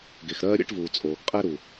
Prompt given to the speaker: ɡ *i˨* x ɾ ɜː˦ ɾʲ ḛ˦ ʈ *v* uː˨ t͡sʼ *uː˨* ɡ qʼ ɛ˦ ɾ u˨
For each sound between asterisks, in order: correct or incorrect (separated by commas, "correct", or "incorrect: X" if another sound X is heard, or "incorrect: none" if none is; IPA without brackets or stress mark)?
incorrect: e˨, correct, incorrect: oː˨